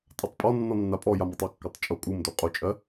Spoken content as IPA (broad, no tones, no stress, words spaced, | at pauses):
tʼatˤpʼɔnːɔ nːapʼɔjam ɒtˤɒkːotˤ t͡ʃʼo kʼumdo qʼot͡ʃʼɜ